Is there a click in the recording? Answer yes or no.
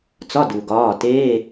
no